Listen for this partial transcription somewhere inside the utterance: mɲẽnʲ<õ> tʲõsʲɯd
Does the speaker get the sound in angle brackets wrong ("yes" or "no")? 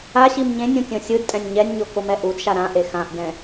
yes